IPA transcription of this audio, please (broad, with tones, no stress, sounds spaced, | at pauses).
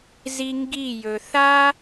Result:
z i˧ ŋ ɡ i˦˨ j ɵ˨ θ a˦